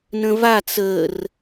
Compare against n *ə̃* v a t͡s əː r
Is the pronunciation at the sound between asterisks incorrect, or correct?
correct